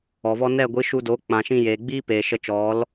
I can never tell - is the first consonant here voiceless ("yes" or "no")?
no